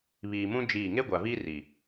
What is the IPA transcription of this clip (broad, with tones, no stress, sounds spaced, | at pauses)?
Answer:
β iː˨ m ũ˦ d͡ʒ iː˦˨ ŋ e˦ ɡʷ a˨ v iː˦ r i˨